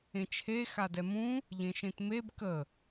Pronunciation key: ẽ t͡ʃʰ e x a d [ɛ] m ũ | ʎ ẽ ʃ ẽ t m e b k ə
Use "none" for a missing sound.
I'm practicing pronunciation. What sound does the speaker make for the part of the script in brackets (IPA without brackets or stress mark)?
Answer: ɛ